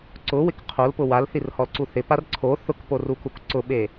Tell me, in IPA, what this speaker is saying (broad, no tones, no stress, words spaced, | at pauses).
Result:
ǀʊwɪk qʰolpʊ walθirhɔlǀu θɪpar ǀʰo θʊkporukuk ǀʊɓe